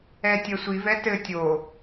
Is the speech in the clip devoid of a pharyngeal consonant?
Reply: yes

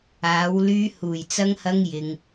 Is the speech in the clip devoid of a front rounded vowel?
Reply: no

